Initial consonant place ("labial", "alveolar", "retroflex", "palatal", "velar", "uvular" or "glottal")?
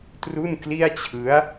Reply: alveolar